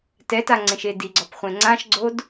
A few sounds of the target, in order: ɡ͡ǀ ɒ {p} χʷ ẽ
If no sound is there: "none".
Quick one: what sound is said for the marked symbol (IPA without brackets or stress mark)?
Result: p